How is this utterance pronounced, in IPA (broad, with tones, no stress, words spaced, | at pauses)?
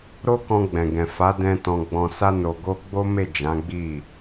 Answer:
ɾo˦kɔ̃˧ɡ͡bɛ̃˨ ɡɛ̃˨fa˨˦dɛ̃˧ tɔ̃˧ɡ͡bɔ̃˧sa˦ no˧ɡo˦ ɡ͡bo˦me˦˨ d͡ʒã˨˦ɡ͡bi˦˨